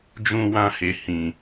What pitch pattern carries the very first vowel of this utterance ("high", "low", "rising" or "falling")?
low